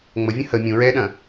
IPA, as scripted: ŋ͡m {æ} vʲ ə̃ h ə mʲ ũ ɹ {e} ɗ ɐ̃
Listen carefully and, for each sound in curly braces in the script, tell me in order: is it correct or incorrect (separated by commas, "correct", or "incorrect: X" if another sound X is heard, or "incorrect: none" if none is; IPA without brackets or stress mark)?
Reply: incorrect: ə, incorrect: ɛ